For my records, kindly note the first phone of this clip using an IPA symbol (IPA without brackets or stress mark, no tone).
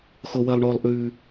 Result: x